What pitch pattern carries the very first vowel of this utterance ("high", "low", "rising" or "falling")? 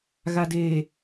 low